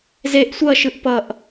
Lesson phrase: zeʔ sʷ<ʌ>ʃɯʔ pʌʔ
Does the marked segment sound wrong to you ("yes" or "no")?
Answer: no